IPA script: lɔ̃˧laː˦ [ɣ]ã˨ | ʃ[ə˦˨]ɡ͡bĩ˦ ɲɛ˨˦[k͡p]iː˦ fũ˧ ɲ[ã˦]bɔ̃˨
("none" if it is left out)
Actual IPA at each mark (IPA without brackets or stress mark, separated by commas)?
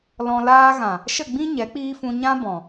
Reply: ɣ, ə˦˨, k͡p, ã˦